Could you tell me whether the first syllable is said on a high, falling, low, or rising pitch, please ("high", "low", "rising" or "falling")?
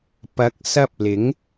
rising